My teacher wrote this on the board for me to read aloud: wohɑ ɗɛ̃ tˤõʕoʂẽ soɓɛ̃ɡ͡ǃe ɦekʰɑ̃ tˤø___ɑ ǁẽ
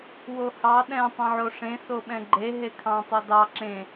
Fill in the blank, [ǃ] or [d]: d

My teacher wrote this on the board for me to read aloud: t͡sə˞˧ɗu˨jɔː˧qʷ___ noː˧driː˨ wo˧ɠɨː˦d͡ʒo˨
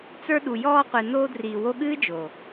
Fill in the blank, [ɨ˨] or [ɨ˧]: ɨ˨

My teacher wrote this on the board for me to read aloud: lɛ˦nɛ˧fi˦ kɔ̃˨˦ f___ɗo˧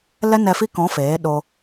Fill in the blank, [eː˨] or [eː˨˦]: eː˨˦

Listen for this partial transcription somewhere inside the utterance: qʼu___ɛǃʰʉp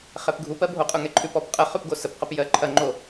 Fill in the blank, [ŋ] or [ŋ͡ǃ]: ŋ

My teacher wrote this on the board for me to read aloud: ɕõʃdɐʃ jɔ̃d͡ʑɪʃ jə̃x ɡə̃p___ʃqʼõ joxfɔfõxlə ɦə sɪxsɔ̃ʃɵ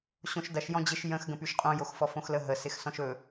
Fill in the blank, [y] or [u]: y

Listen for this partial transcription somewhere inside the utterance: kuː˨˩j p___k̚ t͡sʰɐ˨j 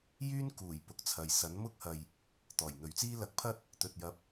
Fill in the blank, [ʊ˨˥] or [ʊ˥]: ʊ˨˥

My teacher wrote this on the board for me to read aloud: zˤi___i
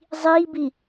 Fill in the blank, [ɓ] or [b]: b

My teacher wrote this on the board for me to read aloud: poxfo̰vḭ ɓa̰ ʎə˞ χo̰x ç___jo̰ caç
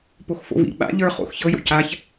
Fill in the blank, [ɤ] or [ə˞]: ɤ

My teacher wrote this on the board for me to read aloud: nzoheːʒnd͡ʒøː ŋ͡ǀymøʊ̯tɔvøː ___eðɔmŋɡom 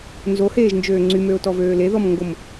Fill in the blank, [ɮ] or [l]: l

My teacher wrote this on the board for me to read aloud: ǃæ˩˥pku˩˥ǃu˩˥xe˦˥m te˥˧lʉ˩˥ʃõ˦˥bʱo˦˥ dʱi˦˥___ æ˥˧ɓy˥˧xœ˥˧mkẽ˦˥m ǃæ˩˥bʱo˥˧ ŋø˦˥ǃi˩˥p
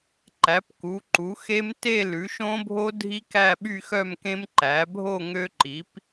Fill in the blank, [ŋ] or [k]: k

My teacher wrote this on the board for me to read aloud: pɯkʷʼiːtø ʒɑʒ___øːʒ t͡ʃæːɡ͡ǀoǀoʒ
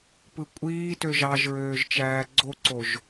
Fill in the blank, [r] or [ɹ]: ɹ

